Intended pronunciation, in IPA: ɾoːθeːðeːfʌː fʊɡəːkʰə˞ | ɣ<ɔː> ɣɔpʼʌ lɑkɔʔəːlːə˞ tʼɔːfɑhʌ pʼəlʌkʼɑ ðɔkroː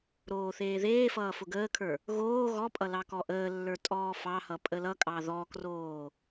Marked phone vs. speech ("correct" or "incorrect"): incorrect